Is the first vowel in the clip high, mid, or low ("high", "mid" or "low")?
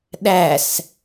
low